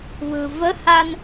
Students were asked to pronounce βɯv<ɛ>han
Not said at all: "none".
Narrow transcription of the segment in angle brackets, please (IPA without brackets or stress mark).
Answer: ə